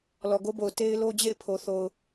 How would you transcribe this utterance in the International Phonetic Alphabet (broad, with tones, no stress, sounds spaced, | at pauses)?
l ɔ˨ ɡ o˦ b o˨ ʊ̯ t e˦ ɪ̯ l o˦ d͡ʑ ḛ˦˨ ɪ̯ pʰ o˨ θ o˨ ʊ̯